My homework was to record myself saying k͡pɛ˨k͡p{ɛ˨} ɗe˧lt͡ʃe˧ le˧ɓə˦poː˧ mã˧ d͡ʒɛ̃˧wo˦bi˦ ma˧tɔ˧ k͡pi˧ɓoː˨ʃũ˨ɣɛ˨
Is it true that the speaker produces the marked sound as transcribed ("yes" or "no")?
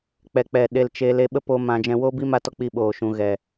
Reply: yes